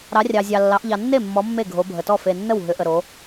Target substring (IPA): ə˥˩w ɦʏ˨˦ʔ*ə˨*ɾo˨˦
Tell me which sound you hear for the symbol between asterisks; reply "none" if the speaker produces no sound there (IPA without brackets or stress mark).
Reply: ə˨